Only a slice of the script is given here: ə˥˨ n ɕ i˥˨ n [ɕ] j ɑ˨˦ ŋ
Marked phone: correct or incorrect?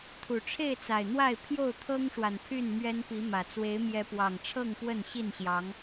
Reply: correct